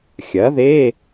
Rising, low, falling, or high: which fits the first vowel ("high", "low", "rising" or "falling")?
rising